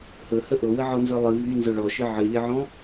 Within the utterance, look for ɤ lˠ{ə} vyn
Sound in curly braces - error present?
yes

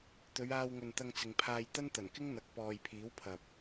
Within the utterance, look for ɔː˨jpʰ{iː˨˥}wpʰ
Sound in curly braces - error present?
no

